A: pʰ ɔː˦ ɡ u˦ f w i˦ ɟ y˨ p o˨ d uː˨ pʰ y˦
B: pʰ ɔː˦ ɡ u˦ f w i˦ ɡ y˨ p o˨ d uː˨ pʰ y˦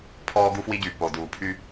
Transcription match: A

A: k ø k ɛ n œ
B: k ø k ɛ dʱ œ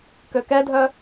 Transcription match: B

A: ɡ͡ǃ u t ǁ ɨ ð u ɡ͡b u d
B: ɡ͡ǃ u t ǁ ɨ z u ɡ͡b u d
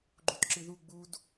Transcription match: A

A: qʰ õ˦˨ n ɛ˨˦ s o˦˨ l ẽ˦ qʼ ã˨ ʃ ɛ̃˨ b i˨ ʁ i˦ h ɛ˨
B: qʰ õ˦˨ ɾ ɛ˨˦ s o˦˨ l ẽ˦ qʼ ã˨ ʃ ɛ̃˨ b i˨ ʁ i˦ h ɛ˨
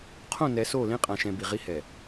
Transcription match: A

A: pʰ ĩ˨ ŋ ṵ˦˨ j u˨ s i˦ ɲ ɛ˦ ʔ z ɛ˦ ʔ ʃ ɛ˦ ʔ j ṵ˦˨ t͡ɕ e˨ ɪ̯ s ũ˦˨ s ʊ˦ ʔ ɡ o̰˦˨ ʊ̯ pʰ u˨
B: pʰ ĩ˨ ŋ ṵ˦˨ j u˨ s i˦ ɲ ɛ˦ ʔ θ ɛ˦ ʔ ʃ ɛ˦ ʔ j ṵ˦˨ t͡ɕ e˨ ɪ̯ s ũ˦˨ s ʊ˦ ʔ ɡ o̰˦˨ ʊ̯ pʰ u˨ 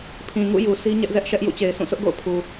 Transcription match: A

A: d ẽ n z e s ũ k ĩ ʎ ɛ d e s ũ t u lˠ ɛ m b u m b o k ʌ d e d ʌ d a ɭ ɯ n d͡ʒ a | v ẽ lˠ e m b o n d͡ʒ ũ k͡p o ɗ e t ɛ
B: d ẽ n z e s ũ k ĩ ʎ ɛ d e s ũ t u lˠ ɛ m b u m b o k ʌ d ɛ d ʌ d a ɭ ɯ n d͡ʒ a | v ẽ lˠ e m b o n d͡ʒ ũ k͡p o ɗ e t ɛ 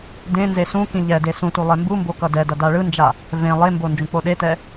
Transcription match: B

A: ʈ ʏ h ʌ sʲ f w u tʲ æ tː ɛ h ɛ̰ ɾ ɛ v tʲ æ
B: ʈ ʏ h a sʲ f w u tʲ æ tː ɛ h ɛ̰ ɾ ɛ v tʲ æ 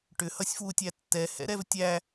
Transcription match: A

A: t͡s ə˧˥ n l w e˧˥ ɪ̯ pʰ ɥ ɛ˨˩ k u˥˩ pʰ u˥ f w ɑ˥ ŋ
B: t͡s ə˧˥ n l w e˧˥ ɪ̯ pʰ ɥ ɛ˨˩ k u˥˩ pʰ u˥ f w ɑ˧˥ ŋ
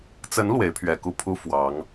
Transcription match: B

